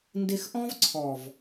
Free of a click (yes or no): no